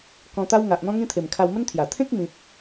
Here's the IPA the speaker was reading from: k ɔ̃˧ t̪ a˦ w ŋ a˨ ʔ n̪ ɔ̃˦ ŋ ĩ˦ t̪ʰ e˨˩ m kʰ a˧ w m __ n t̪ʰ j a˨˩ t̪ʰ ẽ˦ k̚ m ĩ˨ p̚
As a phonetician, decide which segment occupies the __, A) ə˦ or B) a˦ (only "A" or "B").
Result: A